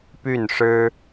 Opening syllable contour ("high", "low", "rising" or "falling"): falling